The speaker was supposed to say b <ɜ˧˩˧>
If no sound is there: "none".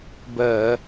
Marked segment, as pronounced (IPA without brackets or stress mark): ɜ˧˩˧